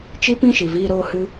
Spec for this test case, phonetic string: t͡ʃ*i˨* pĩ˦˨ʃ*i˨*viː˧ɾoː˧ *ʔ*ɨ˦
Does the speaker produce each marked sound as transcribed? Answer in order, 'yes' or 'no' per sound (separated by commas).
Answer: no, yes, no